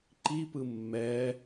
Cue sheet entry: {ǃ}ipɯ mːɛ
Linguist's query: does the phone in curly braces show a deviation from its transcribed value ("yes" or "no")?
no